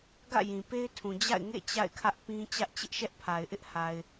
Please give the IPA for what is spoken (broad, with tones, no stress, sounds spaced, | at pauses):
ɡ ä̰˦˨ j ĩ˨ p e˦ ɪ̯ tʰ ũ˨ d͡ʑ a̰˦˨ ɪ̯ ŋ ḛ˦˨ t͡ɕ a̰˦˨ ɪ̯ kʰ ä˦ ʔ p ĩ˦ t͡ɕ ä˦ ʔ t͡ɕ ɪ˦ ʔ ʃ ɛ˦ ʔ pʰ a˨ ɪ̯ ʔ ɪ˦ ʔ h a˨ ɪ̯